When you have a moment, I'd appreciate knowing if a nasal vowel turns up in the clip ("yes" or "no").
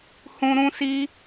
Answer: yes